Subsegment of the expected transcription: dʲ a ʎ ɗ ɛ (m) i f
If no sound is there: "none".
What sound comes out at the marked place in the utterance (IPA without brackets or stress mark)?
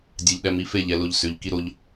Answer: m